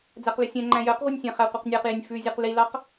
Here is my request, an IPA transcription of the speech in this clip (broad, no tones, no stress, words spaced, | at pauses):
d͡zæqlɵsʲɛ̃ŋ͡ǃæ̃ jœqʁʷenʲ sʲɛ̃χæ qʷɛqnʲæqjinʲ fʉzʲʉq lilɑq